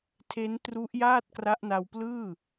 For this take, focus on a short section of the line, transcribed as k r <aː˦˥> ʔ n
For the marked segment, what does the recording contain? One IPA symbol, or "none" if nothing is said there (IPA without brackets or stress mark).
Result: a˦˥